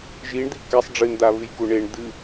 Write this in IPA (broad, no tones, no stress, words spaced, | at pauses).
ʒiɳd̪i kɛsˤ ɖ͡ʐɨnd̪aβɨjku ɳeɳ d̪ɨ